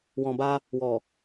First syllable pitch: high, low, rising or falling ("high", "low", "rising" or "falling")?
low